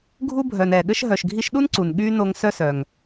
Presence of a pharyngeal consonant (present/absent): absent